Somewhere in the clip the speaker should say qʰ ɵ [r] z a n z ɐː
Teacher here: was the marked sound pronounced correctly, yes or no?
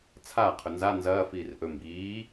no